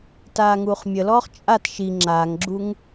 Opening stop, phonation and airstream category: plain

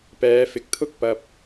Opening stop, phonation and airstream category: plain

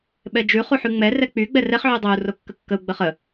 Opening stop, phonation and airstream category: implosive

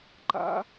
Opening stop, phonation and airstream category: click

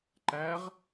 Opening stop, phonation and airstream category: click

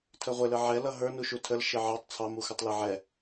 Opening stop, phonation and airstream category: aspirated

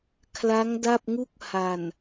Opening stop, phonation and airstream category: aspirated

